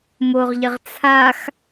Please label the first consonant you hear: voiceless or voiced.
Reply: voiced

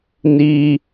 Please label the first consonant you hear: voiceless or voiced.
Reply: voiced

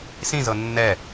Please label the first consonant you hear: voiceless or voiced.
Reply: voiceless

